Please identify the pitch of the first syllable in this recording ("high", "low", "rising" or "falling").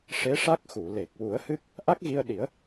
rising